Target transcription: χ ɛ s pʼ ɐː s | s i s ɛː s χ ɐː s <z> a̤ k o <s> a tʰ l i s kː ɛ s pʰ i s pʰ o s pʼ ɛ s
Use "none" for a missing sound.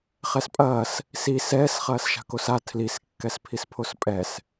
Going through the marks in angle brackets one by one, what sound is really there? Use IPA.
ʃ, s

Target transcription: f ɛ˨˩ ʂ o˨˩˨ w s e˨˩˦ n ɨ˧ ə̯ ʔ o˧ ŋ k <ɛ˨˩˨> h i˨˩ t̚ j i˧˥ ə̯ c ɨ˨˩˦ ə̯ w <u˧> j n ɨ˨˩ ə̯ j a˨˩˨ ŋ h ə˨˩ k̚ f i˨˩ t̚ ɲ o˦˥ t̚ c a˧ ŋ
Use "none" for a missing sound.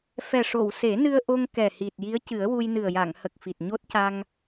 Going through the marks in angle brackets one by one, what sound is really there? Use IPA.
ɛ˨˩, u˧

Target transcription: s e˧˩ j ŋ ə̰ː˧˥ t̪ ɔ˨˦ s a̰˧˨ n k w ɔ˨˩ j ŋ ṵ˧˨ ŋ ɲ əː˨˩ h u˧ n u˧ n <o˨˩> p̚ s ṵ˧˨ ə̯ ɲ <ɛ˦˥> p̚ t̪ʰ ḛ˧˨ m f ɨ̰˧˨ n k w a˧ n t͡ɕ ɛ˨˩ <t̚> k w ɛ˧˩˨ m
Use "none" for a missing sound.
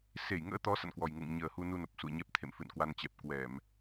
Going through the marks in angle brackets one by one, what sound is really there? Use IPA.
o˨˩, ɛ˦˥, p̚

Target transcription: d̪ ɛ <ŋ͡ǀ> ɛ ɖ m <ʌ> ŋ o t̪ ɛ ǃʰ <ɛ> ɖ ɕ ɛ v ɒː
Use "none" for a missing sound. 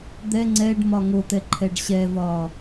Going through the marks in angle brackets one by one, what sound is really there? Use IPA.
ŋ͡ǀ, ɒ, ɛ

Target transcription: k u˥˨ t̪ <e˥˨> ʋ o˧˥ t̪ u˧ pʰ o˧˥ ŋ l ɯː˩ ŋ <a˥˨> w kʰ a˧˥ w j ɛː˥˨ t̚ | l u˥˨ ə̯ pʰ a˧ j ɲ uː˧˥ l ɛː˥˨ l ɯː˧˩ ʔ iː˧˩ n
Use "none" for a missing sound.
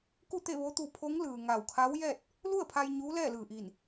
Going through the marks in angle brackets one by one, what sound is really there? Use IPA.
e˥˨, a˧˩

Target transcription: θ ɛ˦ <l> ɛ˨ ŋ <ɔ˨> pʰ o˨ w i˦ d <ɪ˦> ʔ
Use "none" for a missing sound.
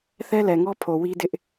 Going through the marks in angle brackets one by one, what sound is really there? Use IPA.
l, ɔ˦, ɪ˦

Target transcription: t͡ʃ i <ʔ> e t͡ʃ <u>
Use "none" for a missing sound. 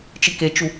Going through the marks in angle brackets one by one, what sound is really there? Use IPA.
k, u

